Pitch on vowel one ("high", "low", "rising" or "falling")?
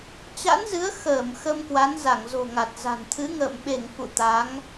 rising